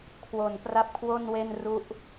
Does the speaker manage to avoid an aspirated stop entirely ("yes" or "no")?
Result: no